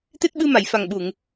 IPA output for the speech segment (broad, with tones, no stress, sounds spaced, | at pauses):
t̪ e˦˥ t̚ ɓ ɨ˧ m a˨˩˨ j f a˨˩ ŋ ɓ u˨˩˨ ŋ